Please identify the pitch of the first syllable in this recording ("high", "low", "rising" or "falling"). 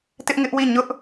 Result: high